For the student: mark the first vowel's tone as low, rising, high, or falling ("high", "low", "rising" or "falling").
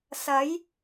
rising